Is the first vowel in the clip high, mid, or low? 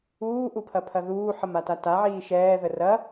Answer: high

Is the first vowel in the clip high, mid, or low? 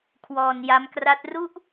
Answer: mid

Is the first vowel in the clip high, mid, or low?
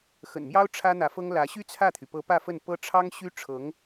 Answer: mid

